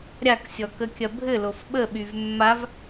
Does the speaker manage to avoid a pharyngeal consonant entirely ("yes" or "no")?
yes